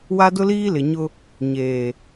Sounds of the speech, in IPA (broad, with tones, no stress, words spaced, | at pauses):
wa˦dʊ˦liː˦lɪ˨ ɲʊ˦ | ɲeː˨